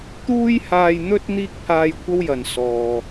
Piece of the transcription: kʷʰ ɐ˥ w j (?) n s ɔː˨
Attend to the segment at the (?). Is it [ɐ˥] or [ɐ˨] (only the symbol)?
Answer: ɐ˨